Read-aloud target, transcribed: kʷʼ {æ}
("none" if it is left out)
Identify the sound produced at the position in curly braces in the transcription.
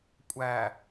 æ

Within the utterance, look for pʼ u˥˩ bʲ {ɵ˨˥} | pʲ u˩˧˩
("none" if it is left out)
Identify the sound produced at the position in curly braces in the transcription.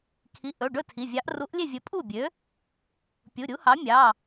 ø˨˥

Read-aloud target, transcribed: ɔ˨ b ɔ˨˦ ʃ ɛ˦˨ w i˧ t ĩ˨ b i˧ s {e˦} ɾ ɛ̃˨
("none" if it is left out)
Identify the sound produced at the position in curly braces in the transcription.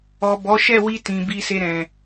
e˧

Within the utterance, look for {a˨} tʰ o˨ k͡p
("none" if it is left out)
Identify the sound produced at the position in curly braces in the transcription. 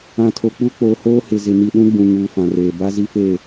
ã˨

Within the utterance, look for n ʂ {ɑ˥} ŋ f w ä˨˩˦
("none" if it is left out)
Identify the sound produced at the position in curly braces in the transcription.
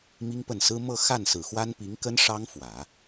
ɑ˥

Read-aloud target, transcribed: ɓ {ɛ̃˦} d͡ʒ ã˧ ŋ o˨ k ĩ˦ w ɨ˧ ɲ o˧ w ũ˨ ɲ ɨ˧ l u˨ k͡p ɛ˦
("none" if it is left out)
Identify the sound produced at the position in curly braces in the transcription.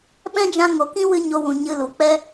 ɛ̃˦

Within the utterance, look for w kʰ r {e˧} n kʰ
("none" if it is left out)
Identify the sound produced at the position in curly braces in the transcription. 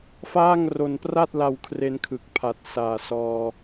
e˦˥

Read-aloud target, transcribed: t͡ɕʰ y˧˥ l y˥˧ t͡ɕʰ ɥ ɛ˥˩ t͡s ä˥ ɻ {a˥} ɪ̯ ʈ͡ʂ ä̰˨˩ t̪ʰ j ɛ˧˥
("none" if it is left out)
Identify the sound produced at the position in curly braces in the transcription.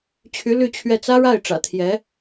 a˥˩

